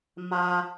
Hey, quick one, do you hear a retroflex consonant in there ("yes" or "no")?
no